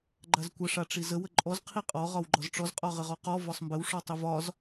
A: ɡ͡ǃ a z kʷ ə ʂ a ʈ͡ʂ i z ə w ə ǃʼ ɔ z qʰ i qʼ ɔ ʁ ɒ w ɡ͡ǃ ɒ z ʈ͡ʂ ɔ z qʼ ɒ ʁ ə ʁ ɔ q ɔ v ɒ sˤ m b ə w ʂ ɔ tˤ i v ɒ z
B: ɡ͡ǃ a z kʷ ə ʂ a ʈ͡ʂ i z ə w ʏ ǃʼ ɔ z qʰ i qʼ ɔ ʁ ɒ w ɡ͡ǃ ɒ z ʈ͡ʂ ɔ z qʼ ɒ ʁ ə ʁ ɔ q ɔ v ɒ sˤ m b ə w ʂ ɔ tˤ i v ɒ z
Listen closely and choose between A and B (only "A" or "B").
A